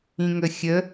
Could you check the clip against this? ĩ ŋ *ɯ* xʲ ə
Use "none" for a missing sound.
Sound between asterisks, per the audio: ə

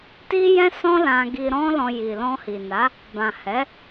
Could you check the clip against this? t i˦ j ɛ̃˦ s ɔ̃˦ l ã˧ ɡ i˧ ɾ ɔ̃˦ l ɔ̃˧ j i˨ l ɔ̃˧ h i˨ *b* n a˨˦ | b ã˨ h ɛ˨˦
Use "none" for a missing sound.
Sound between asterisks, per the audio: none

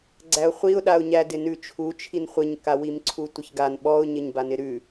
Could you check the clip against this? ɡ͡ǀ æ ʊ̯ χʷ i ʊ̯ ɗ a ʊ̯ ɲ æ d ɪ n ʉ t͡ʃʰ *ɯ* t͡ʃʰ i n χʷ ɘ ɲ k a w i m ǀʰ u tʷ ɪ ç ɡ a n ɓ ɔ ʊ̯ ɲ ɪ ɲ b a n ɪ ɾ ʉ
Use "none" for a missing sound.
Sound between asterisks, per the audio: u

